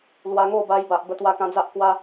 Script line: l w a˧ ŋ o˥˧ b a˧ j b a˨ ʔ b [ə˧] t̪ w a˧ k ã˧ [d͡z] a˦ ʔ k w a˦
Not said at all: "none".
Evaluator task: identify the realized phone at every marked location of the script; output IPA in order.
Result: ə˧, d͡z

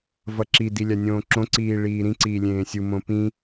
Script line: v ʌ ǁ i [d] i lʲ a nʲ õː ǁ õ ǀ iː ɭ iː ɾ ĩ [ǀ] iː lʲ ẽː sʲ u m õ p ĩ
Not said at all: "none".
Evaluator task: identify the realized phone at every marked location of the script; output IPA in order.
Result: d, ǀ

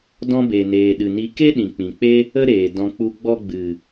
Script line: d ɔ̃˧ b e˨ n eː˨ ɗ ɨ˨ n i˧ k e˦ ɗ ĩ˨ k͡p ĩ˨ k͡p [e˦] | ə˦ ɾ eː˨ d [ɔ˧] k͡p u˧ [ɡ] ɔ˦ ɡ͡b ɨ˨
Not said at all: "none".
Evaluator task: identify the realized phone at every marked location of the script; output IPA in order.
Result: e˦, ɔ̃˧, ɡ͡b

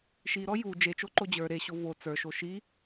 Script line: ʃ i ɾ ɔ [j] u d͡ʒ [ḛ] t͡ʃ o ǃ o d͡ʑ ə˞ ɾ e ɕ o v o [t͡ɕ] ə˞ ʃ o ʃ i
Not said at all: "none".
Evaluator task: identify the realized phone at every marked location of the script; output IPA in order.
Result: j, e, t͡s

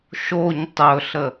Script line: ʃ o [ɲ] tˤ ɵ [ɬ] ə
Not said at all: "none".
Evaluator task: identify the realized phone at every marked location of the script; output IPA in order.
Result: ɲ, ɬ

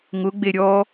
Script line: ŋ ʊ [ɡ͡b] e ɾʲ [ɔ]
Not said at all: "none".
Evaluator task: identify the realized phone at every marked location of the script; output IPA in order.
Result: ɡ͡b, ɔ

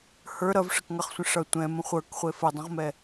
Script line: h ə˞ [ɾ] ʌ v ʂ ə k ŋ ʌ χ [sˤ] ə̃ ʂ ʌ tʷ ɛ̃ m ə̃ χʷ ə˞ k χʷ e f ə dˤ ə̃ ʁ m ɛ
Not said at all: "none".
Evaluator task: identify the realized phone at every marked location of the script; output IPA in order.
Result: ɾ, sʷ

